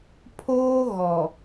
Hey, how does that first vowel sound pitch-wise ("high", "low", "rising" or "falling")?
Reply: high